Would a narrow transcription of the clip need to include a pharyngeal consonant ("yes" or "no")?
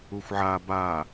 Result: yes